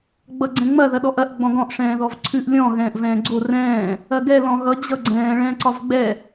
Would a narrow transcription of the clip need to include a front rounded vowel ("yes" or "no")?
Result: no